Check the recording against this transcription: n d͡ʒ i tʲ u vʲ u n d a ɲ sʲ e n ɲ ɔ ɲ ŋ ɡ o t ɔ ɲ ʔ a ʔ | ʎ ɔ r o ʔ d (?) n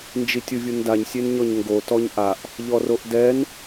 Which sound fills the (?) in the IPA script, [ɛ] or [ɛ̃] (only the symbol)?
ɛ